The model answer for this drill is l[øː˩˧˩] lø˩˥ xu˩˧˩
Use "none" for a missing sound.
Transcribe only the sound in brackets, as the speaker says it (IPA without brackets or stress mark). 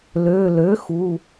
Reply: øː˩˧˩